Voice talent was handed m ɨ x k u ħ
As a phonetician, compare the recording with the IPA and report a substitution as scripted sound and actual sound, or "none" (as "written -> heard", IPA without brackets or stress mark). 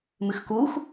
ħ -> x